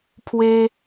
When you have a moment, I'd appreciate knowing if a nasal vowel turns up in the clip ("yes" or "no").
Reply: no